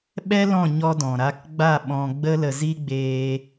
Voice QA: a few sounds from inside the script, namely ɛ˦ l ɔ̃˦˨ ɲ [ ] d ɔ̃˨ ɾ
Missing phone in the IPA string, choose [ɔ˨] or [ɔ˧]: ɔ˧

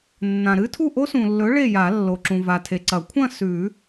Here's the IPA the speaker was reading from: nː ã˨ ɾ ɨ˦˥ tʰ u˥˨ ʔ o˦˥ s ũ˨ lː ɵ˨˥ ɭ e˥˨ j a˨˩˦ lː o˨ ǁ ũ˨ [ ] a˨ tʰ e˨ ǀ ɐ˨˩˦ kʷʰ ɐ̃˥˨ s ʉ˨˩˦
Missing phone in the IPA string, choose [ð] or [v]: v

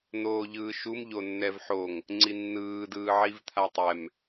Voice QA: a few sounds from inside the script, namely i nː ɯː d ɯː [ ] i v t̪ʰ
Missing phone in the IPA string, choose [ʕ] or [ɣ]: ʕ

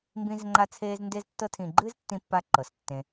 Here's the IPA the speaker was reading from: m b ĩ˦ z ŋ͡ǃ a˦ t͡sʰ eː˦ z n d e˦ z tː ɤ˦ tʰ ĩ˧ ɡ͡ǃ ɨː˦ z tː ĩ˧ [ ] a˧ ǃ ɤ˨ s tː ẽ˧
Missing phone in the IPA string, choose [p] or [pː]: pː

